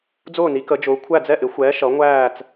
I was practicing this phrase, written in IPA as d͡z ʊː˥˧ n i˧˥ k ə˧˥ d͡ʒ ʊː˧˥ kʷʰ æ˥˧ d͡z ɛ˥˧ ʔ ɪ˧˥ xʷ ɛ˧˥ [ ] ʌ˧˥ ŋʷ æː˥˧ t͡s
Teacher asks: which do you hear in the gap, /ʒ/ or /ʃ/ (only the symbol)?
ʃ